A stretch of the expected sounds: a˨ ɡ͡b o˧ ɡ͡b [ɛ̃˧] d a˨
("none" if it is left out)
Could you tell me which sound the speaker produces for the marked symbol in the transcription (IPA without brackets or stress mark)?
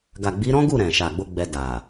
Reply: ɛ˧